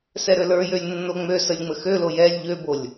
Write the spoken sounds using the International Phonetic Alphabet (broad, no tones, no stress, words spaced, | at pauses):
sɛɾølə˞jølʲ nːoŋ͡møsəlʲ ŋ͡məxølo jɛlʲ ʎøbolʲ